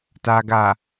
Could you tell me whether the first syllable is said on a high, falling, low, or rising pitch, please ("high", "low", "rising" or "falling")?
low